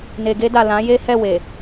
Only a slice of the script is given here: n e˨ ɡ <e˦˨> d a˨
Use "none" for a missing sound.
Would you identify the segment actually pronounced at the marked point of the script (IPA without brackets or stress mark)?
e˧